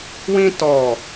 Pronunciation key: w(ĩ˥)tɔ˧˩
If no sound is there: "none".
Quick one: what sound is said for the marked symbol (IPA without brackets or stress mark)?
ĩ˥